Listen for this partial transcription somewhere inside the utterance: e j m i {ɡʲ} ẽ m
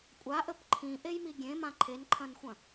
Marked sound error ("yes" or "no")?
no